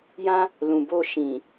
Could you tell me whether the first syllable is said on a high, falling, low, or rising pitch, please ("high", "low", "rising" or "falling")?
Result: high